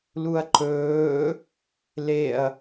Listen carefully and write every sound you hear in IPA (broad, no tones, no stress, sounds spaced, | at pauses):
l u ɐ̯ ǃ ɵː | l e ɐ̯